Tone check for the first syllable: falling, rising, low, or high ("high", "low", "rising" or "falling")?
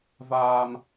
low